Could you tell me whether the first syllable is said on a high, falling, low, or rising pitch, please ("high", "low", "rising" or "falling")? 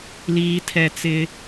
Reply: high